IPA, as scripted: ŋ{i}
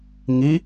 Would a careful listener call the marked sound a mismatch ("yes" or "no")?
no